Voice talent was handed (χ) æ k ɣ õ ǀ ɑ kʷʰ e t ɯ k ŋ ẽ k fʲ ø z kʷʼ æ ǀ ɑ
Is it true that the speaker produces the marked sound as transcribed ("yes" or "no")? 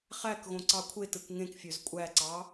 yes